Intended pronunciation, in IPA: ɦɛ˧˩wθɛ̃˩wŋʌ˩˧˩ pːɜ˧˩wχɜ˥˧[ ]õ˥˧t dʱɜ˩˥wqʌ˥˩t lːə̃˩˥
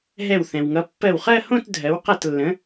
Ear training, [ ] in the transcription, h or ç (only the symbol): h